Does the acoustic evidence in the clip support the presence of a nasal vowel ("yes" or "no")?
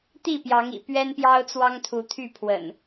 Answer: no